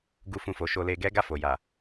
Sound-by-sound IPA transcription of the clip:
ɡu˦fũ˦˨fo˨˦ ʃo˧le˧ɡɛ˦ ɡa˦˨ fo˨ja˨

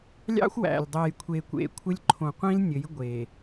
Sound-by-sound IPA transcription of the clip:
lʲɑ̰˦xʷwæ̰˨lʲdˤe˨j kʷʰe˨kʷḛ˨kʷʰɘ˦lʲǃʰõ˨ qʷĩ˦lnʲɘ˨˦j ɡʷe˨

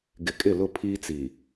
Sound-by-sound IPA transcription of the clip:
ɡɪ˨kʼɪ˦˨lʊ˦˨ pʰiː˦t͡si˨

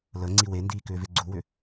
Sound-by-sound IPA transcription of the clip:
lə ŋ͡ǀiwendiː kʏːveɡ͡ǀuwʏ

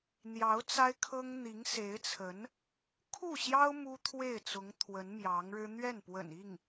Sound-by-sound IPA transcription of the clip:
n̪jɑ˧˥ʊ̯ t͡sa˥ɪ̯kʰɤ˥ŋ n̪i˧˥ŋse˧˥ɪ̯t͡sʰə˧˥n | kʰu˥˩ɕjɑ˥ʊ̯ mu˥t̪ʰwe˥˩ɪ̯t͡sʊ˧˥ŋt̪ʰwə˧˥n mjɑ˧˥ŋɻɻ̩˥ n̪ɥɛ˥˩npwə̰˨˩ni˥˩ŋ

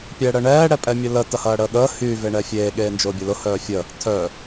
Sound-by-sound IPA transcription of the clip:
pʲɛɽəɳɛː ɽɛpʼɛmʲʊlə tɐhɐːɽəːɠəː hy veɳɛfʲeː ɠeːnd͡ʒʊːbʲəlʊ hœːfʲə | tʰœ

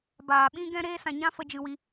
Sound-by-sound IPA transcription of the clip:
baː˨ɓĩ˧ ɡɛ̃˦ɾeː˦sã˧ɲã˦ fə˦d͡ʒɨ˦wi˦

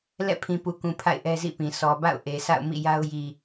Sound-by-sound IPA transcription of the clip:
lɛ̰˦˨pʰĩ˨pu˨kũ˨ pʰa̰˦˨ɪ̯ʔɛ˦zḭ˦˨pĩ˨ sʰɔ˨ba̰˦˨ʊ̯ ʔe˨sʰa̰˦˨ʊ̯mḭ˦˨ja˦ʊ̯ ji˨

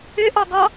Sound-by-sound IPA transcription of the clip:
ʏʔɔɡɔ

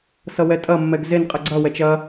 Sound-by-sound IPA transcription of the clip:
sʌwɛtʼɐmːɛɡ zenqʼɐ ɡ͡ǀɐwɛt͡ʃ ɐ

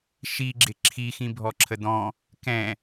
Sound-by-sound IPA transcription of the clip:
ʃiɡ͡ǁɪ ǁʰixĩ bʱɔǁʰəd̪ɔ̃ | kɛ̃

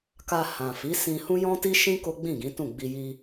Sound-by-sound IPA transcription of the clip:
ka˧ hã˨fi˨˦sĩ˧ hũ˦jɔ̃˦ti˦ʃĩ˦ ko˦ɡ͡bĩ˦˨ɡĩ˨˦tũ˦˨ ɡ͡bi˧ji˧

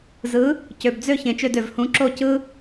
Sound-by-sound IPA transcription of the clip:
zɯ˩˥ | cø˩bd͡zø˥˩ çẽ˩t͡ʃø˥˩dø˩v hũ˩˥ǁo˥˩ cɯ˥

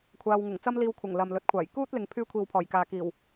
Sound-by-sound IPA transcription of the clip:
kʷʰaː˧wŋʊ˨˩ŋ t͡sɐ˥mliː˧wkʷʰɐ˨˩ŋ lɐ˨mlɵ˨˥t̚kʷʰaː˨˩j kuː˥t̚ lɪ˧ŋpʰyː˥ kʷʰiː˨wpʰɔː˨˩jkaː˨ kiː˨˩w

